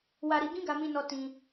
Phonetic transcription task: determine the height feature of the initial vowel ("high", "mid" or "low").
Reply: low